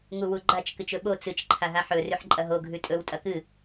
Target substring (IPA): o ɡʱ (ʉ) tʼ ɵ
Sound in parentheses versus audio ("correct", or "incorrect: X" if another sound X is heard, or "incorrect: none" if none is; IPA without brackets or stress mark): correct